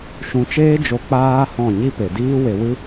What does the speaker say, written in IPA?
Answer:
ʃ ũ˧ t͡ʃ eː˦ d͡ʒ o˧ k͡p aː˦ h ɔ̃˦˨ ɲ i˦ p e˨ d iː˦ w e˧ w ɨ˦

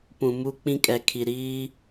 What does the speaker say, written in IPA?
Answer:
p ũ˨ m u˦ k͡p ĩ˦ kʼ ɛ˨ kʰ i˨ ɾ iː˦

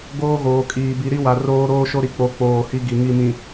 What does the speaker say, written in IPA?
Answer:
ɡ oː˦ ɣ oː˨ kʼ iː˨ b i˨ ɾ i˦ w a˨ r oː˦ ɾ oː˦ ʃ o˦ ɾ i˨ k͡p o˦ k͡p oː˦˨ h i˦ ɡ i˨ ŋ i˦˨ m ĩ˨

